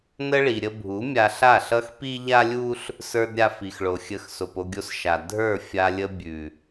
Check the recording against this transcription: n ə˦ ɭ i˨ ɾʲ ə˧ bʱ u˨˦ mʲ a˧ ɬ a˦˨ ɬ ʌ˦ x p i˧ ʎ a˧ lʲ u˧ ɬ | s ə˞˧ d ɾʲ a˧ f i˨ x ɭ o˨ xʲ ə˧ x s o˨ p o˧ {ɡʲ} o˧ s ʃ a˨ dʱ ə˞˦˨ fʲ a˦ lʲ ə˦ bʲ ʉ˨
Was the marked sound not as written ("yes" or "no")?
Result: no